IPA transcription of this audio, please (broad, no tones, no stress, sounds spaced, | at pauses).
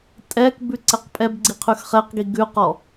tʼ ɛ k b ʉ ǀ ɛ q pʼ ɛ b ɡ͡ǀ i qʰ ʉ x χ ɛ q ɡ i ɡ ʉ q ɔ